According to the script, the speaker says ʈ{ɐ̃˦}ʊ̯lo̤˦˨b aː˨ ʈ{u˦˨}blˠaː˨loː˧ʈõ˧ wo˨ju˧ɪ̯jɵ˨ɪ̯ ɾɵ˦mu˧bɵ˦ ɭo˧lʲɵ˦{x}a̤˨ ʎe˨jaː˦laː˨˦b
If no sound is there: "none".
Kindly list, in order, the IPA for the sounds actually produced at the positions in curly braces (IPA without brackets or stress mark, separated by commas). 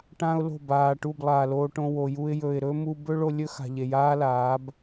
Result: ã˦, u˦˨, x